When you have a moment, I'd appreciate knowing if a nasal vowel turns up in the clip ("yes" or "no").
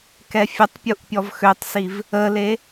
no